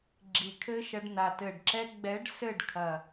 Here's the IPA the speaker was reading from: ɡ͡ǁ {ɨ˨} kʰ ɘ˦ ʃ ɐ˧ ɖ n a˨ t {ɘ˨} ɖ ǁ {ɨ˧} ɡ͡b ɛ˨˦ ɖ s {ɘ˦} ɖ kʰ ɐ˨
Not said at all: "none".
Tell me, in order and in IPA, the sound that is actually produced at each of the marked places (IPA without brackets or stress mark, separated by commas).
i˨, ɘ˨, ɛ˧, ɘ˦˨